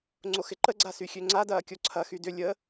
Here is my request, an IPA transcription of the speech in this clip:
ŋ͡ǀ o x ɪ ǃ ə ɡ͡ǀ a s y xʲ ø ŋ͡ǀ a d ɐː kʲ o ǀʰ ɐ x y d ʏ lʲ ə

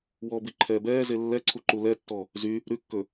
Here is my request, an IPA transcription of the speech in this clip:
w ɔ b i ǃʰ ɛː b ɛː z e lː ɛ ǀʰ u ǃ u l ɛ tː ɔ | z y | ɾ ʉ kː ɵ

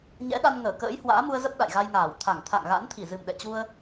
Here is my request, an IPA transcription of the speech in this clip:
ɲ ɛ̰˧˥ ɗ a˧ n ŋ əː˧˩ k ə̰ː˧˥ j h w a̰ː˧˥ m u˧ ə̯ z ə˦˥ p̚ ɗ a̰˧˨ j ɣ a˧ j ŋ aː˧˩ w t̪ʰ a˧˩ ŋ t̪ʰ a̰˧˨ ŋ ɣ a̰˧˥ n t̪ʰ i˧˩ z ɨ˨˩ m ɗ ɛ̰˧˨ t͡ɕ u˧ ə̯

